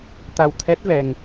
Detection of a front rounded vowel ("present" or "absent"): absent